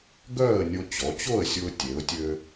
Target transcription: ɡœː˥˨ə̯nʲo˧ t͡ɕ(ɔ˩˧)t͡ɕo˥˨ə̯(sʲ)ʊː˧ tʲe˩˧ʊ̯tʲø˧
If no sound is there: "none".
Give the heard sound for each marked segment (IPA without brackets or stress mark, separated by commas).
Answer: ɔ˩˧, sʲ